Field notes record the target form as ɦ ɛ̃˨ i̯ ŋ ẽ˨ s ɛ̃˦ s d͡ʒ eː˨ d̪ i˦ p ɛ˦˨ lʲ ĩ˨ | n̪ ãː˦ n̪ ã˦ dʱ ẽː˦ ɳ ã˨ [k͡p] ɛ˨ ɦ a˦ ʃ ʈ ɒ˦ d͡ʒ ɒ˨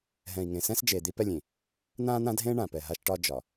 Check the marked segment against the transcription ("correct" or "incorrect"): incorrect